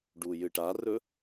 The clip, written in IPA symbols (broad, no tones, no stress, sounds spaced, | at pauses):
ɖ u j ɨ ʈ a r ɵ